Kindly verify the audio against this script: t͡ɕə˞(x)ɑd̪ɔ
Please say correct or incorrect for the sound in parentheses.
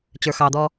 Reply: correct